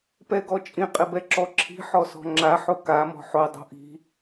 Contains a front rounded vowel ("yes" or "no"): no